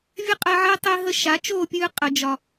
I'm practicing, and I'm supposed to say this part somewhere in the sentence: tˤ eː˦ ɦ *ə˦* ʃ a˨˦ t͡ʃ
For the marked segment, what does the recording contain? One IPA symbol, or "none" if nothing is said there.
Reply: ə˦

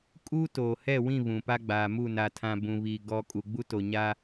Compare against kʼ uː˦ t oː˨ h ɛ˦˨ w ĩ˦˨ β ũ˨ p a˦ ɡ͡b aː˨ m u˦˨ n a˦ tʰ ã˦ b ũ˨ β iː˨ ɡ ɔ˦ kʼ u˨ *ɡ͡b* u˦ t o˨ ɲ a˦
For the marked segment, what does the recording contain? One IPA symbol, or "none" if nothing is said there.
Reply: ɡ͡b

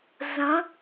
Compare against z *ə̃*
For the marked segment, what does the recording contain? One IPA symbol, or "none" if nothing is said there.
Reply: ə̃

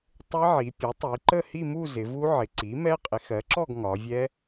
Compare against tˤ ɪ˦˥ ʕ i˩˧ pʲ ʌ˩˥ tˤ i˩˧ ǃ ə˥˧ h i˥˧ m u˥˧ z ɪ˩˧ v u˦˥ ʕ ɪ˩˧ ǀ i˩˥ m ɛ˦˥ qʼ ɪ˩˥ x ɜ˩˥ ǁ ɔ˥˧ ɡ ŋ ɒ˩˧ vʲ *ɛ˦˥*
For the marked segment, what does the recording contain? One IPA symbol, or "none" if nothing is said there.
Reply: ɛ˦˥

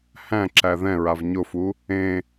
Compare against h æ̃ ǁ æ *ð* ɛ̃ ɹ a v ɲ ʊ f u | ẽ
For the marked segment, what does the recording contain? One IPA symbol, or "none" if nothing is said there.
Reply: ð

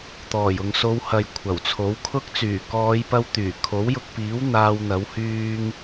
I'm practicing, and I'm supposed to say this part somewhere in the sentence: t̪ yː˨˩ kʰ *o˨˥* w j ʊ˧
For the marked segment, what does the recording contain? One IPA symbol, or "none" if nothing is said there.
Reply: o˨˥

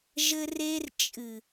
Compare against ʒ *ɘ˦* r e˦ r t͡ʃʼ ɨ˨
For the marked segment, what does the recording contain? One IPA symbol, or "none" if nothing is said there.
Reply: ɘ˦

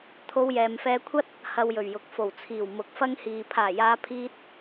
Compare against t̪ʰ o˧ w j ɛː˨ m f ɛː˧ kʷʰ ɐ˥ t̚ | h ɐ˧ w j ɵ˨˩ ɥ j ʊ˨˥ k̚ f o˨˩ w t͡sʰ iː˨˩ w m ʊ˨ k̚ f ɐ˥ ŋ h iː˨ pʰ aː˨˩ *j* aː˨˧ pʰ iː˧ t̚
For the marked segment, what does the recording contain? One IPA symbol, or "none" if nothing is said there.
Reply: j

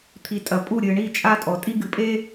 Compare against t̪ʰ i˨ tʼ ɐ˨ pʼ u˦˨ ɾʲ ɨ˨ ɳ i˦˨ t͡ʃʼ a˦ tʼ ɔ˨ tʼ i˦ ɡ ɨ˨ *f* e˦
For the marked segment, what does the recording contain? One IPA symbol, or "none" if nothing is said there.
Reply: pʼ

